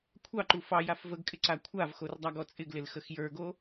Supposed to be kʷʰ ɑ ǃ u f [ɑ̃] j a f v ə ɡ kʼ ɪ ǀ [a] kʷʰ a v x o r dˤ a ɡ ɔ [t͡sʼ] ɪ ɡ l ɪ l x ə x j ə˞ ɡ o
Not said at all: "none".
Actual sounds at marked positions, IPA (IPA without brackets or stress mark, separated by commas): ɑ, a, t͡sʼ